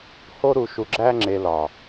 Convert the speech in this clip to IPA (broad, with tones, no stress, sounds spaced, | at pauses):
h o˥ ɾ u˧ ʃ u˧ ɡ͡ǁ æ˥ ŋ͡ǁ e˧ l ɒ˨˩